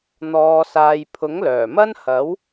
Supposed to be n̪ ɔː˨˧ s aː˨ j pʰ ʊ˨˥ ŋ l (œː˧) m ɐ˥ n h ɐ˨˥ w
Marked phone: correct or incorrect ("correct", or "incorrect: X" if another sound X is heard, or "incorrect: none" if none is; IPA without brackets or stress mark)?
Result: incorrect: œː˨˩